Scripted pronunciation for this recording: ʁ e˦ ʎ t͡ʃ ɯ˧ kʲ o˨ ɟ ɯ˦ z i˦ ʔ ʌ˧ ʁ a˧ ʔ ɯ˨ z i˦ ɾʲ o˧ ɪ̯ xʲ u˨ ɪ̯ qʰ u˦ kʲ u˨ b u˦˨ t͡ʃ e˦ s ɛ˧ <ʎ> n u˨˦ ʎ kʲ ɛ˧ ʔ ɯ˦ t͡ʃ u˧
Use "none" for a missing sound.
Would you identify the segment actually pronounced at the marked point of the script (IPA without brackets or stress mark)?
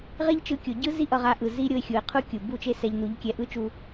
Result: ʎ